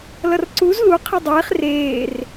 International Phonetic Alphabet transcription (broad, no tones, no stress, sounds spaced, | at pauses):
l ʌ r ǀ u z l u qʰ ɯ dˤ eː χ r eː r